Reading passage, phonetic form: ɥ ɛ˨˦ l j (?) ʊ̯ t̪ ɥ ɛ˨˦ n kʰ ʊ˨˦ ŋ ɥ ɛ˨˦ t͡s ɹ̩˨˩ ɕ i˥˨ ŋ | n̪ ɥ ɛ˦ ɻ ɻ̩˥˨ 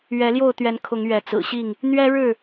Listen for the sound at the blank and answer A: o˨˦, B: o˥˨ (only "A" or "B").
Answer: B